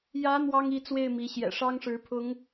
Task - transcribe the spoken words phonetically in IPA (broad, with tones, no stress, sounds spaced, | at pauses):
j ä˧˥ n̪ w ɑ˥ ŋ i˧˥ t͡s w e˥˩ ɪ̯ m i˧˥ ɕ j ɛ̰˨˩ ʂ ɑ˥ ŋ ʂ ɻ̩˧˥ pʰ ʊ˧˥ ŋ